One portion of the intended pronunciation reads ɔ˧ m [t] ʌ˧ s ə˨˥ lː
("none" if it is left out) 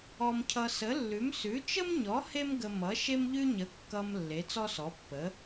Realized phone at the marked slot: cʰ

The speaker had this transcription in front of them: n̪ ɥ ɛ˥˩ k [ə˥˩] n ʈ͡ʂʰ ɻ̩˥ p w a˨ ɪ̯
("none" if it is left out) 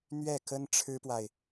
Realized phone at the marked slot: ə˥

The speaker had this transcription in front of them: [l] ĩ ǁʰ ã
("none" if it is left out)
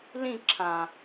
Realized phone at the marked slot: l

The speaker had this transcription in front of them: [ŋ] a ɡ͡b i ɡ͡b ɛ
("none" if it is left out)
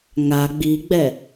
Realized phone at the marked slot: ŋ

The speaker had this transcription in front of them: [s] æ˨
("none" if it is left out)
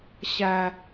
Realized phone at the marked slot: ɕ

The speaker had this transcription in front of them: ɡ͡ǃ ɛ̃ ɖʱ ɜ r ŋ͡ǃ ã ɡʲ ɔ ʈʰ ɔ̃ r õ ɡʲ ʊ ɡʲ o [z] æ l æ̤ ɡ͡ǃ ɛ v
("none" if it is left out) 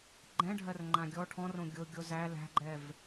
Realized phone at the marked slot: z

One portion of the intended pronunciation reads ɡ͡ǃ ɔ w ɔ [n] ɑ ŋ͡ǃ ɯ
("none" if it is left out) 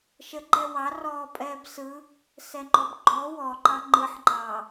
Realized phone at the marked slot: ǃ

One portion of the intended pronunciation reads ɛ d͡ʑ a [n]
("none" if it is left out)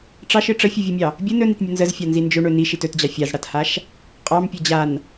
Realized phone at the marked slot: n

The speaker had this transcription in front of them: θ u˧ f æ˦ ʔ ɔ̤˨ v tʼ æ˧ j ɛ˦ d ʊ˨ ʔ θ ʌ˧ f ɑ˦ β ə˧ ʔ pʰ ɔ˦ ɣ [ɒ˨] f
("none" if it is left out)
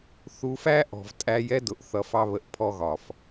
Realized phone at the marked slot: ɒ˨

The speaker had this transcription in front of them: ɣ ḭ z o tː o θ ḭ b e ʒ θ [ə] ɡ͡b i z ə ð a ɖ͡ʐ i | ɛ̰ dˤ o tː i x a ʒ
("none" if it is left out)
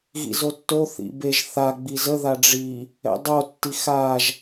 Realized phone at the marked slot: a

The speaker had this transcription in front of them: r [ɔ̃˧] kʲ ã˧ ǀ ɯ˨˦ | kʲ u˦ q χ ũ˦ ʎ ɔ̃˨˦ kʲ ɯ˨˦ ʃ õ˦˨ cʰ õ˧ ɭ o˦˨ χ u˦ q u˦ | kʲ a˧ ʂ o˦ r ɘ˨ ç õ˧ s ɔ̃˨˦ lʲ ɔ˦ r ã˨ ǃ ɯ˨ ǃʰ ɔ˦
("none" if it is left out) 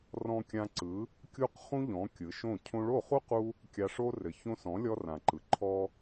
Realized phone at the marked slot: ɔ̃˧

